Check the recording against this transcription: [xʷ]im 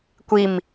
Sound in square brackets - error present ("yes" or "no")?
yes